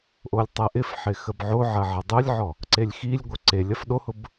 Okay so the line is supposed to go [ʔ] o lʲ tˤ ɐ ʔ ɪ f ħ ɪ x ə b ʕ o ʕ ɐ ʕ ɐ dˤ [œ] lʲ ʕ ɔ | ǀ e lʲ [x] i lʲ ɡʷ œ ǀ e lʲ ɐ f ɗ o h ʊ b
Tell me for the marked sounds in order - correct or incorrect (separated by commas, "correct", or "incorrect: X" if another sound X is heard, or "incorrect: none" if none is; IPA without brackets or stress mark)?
correct, correct, correct